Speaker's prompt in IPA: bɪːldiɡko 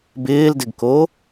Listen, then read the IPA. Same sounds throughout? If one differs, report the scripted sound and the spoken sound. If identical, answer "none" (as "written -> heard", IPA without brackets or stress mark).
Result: i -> ɪ